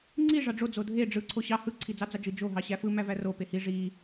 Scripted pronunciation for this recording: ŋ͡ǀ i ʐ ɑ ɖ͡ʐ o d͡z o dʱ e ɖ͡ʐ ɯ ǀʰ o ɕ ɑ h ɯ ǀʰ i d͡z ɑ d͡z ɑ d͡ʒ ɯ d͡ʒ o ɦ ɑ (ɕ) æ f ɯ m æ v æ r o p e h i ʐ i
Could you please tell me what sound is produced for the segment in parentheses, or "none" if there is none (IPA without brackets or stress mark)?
ɕ